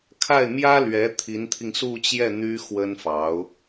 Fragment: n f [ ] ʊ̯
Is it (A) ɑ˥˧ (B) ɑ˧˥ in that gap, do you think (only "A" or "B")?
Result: B